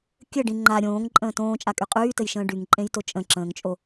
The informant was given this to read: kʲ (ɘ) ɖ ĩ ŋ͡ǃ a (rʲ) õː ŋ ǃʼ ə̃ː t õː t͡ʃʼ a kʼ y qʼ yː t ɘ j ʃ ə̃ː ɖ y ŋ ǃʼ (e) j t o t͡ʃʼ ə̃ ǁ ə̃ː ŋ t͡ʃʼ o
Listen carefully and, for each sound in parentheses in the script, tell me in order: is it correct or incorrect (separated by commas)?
correct, incorrect, incorrect